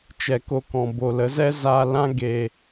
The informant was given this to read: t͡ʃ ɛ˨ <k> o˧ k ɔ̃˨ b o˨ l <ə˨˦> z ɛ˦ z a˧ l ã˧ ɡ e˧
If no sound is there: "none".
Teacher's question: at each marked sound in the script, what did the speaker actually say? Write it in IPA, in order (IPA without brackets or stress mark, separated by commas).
k, ə˨˦